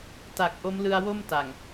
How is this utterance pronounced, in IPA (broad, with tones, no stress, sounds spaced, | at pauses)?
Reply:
t a˨˩ k̚ ʔ o˦˥ m l ɯ˧ a̯ w o˥˩ m t a˨˩ ŋ